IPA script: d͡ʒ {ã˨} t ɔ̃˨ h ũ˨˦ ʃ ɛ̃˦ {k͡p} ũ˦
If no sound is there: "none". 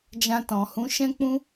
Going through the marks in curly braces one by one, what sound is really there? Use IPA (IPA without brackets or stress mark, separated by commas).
ã˧, k͡p